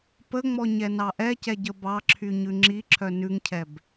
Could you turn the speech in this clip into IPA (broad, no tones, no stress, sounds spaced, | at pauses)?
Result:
p ə ŋ͡m ɔ ɲ ɛ n ɑ ʔ ɛ c ɛ ɟ ə b ɑ ǁʰ y ɲ ʉ ŋ͡ǁ i ǁʰ œ n ʉ ŋ cʰ ɛ b